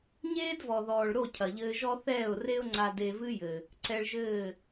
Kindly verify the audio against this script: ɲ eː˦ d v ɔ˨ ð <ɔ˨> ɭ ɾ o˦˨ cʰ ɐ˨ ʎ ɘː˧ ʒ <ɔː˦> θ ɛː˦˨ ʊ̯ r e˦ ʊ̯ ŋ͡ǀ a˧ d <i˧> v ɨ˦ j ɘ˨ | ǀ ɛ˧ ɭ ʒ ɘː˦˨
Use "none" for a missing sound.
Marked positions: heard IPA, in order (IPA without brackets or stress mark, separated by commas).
ɔː˨, ɔ˦, e˧